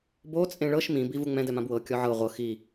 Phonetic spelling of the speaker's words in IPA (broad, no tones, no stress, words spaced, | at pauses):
bo t͡sʼẽɭɤʃ mĩ bivuŋ͡mɛ̃d ɛmãbwɤ kʲɔʕɤ ʁʷɤ xi